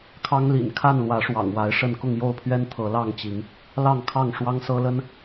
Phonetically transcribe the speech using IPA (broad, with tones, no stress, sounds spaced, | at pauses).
kʰ ɑ˦ ŋ l ḭ˨˩ n kʰ a˥˨ n l w ä˨˦ ʂ w ɑ̰˨˩ ŋ w a˨˦ ɪ̯ ʂ ə˥˨ n k ʊ˥˨ ŋ j o˥˨ ʊ̯ pʰ ɥ ɛ˦ n t̪ʰ ɤ˨˦ l ɑ˥˨ ŋ t͡ɕ i˨˦ ŋ | l ɑ˥˨ ŋ kʰ ɑ˥˨ ŋ ʂ w ɑ˦ ŋ s ɤ˦ l ə˦ n